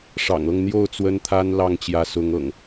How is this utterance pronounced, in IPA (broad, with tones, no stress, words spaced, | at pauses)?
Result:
ʂɑ̰˨˩ŋɤ˥˨ŋn̪jo˥˨ʊ̯ t͡swə˦nt̪ʰa˦n lɑ˥˨ŋt͡ɕjä˨˦sʊ˨˦ŋɤ̰˨˩ŋ